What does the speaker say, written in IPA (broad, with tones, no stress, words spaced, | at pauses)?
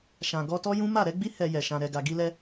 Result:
ʃã˨ ɡɔ˧tɔ˦jũ˦ ma˦˨ɾɛ˨˦ɡ͡bi˦ hɛ˧jɛ˨ ʃã˨ ɾɛ˨ɡa˨ɡi˧lɛ˧